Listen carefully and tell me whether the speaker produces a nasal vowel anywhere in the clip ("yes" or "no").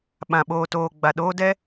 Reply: yes